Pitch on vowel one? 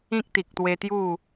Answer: high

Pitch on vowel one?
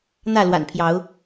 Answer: falling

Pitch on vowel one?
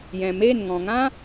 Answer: low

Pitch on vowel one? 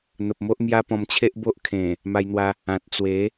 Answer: low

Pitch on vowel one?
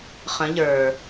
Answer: rising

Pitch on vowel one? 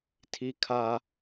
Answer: low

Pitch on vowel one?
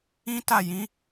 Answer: high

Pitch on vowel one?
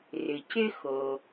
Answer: low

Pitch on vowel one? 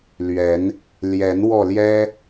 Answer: rising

